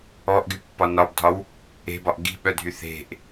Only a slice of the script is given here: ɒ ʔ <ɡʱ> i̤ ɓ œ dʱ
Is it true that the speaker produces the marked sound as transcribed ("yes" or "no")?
no